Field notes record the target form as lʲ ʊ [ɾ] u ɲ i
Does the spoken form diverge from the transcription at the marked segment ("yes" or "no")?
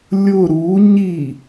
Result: no